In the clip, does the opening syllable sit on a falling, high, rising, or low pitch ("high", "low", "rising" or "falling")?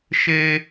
high